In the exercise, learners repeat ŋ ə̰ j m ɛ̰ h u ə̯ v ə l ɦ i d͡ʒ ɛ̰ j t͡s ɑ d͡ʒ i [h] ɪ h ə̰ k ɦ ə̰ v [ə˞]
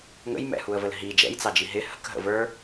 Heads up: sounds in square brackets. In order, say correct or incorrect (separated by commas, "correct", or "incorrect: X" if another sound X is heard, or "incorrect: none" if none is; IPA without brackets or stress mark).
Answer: incorrect: ɦ, correct